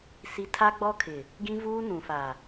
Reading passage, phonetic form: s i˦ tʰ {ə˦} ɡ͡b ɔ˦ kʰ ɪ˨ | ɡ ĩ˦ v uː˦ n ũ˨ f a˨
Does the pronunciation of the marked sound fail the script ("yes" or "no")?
yes